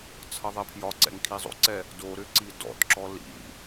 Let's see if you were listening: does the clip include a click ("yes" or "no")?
yes